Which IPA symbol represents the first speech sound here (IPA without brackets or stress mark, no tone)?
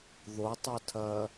ð